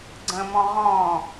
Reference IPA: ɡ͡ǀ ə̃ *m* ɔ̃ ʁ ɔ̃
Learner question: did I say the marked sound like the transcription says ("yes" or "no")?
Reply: yes